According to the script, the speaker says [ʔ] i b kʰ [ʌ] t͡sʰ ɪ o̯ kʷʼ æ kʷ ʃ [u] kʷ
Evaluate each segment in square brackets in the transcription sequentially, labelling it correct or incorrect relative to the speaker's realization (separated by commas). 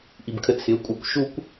correct, incorrect, correct